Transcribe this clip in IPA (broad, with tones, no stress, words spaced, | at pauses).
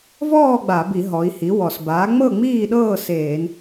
vɔː˥˨ ɡ͡ba˧˩˧bi˧˩˧ɦɔ˩˧i̯ hi˩˥wɔ˨˩s baː˩˥ ŋ͡mɤ˥˨ŋ͡miː˥˨ɗɤː˥˨ seː˧˩˧n